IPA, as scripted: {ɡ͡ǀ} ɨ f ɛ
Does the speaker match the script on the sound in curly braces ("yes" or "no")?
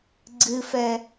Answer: yes